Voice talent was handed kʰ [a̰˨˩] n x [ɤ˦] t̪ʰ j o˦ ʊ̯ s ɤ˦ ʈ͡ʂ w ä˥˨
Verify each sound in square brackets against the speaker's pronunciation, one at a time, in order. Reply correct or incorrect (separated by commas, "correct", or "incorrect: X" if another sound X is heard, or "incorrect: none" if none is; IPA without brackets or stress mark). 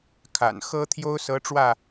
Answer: correct, correct